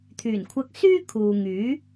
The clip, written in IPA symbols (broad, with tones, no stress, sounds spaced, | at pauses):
t̪ʰ yː˨˩ n kʷʰ ɐ˧ k̚ s yː˥ kʰ uː˨ ŋ yː˨˥